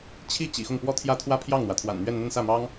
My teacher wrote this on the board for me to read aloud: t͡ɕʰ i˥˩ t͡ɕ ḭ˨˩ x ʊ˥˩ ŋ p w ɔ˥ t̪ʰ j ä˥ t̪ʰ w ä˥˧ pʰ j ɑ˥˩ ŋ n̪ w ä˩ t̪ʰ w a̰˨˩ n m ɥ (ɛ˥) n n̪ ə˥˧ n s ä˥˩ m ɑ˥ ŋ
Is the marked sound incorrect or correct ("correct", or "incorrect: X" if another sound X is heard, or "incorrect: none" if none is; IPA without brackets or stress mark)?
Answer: incorrect: ɛ˥˧